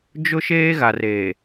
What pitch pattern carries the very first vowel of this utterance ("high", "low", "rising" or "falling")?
high